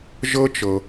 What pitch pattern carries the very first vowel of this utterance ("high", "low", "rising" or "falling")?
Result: high